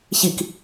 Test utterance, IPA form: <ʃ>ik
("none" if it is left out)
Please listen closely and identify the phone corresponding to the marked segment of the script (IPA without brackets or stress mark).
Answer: ç